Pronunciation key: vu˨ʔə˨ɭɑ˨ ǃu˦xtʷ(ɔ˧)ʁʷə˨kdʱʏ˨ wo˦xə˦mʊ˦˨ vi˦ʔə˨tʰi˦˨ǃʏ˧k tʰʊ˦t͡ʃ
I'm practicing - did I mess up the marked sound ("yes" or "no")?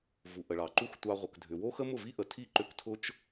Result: yes